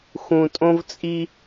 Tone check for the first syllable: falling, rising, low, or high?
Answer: low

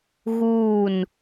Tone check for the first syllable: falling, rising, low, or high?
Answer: falling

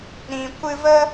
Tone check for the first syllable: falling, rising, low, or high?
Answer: low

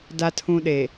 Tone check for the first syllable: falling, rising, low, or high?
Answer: low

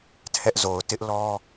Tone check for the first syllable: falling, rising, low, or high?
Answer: high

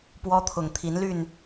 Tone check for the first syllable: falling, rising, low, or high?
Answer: high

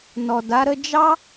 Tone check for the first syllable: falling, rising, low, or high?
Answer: low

